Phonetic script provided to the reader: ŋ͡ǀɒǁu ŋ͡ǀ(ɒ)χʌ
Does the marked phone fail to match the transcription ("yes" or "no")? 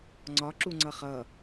yes